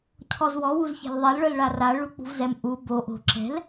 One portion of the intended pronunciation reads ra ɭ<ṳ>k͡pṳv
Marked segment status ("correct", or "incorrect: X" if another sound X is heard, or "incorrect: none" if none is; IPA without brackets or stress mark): incorrect: u